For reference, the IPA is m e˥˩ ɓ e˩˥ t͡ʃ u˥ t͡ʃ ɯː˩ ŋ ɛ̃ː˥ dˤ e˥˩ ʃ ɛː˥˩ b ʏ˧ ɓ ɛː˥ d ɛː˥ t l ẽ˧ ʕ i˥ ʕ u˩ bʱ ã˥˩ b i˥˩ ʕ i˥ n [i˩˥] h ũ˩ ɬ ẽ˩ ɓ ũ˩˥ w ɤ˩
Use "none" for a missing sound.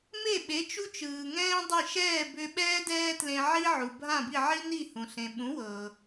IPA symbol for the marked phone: i˥˩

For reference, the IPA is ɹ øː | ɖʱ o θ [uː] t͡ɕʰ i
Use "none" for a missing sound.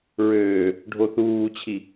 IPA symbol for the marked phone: uː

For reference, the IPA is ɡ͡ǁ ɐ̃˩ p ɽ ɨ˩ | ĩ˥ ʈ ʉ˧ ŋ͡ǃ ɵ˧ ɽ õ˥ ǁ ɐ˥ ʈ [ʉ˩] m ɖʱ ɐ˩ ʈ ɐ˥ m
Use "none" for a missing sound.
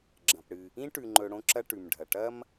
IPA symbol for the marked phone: ʉ˩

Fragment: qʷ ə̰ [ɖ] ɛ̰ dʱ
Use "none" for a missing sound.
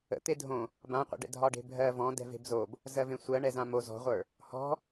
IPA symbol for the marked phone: ɖ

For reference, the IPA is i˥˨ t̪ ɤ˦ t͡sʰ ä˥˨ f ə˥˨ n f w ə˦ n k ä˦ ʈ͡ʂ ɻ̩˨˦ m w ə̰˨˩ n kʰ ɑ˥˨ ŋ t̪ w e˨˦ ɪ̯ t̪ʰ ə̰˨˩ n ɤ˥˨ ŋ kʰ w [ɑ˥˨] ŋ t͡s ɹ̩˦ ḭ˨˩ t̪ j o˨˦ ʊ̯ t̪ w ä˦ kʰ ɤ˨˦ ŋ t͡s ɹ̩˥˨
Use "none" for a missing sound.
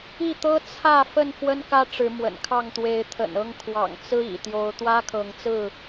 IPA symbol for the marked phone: ɑ̰˨˩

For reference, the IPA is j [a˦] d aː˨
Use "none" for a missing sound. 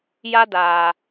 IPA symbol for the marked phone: a˦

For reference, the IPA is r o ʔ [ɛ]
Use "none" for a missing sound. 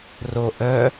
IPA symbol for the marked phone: œ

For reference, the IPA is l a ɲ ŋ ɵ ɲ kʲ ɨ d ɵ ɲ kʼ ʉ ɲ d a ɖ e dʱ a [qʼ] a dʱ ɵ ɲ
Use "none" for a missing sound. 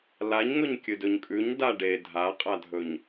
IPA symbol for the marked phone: qʼ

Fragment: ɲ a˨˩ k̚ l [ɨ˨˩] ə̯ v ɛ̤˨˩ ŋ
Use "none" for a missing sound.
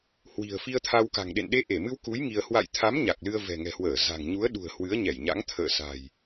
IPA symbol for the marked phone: ɨ˧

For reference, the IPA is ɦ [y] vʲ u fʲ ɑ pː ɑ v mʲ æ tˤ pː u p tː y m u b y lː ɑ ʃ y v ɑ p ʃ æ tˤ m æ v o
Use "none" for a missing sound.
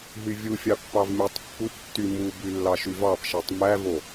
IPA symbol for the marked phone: y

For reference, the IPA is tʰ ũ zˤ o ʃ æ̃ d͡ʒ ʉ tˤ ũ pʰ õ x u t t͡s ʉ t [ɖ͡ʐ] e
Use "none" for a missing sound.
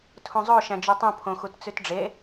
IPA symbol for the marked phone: ɖ͡ʐ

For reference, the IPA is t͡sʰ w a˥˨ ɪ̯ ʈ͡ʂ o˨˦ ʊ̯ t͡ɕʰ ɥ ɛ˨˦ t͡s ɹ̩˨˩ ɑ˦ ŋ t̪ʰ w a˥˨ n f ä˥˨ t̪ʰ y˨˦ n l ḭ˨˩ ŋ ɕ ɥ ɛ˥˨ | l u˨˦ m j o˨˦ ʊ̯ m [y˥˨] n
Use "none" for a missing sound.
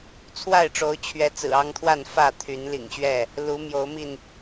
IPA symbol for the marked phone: i˥˨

